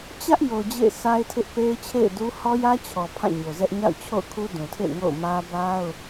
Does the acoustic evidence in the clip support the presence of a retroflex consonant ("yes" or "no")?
no